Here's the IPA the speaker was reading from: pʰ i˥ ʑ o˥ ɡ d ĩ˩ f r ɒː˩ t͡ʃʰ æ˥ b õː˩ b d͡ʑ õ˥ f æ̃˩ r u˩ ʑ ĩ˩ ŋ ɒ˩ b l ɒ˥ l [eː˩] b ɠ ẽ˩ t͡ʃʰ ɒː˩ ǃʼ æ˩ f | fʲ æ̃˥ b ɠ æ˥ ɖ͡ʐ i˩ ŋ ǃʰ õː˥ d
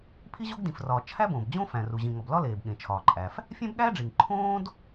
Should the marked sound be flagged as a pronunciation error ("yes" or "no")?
no